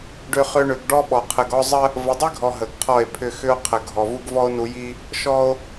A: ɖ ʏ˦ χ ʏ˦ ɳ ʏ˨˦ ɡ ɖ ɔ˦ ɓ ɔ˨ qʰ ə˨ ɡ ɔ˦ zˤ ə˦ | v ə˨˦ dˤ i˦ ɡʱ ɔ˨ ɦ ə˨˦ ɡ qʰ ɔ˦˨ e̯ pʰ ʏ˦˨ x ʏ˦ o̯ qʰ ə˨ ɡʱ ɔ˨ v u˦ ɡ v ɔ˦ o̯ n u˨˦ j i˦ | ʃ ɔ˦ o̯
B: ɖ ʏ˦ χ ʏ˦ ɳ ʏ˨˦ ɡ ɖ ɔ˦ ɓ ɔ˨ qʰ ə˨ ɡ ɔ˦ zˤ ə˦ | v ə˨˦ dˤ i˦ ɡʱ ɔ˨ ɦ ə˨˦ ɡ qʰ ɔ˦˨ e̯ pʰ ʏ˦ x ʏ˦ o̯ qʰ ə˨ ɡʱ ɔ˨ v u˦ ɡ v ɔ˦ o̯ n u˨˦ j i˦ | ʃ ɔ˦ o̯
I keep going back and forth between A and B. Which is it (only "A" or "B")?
B